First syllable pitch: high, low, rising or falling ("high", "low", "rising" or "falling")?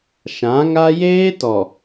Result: rising